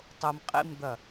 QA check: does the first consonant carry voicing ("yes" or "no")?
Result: no